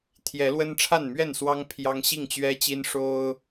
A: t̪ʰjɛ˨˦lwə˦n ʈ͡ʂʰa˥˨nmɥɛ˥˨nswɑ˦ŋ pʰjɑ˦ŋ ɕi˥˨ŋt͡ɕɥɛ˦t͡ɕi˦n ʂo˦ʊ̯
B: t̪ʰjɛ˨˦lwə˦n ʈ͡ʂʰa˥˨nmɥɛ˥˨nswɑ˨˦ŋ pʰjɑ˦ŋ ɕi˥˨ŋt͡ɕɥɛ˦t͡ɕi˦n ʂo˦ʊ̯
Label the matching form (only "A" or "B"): A